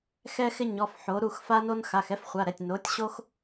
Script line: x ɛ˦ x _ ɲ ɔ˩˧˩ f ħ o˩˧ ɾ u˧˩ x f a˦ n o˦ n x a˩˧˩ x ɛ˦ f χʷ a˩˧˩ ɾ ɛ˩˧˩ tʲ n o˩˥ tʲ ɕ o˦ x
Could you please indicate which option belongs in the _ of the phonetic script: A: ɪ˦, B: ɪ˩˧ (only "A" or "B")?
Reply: A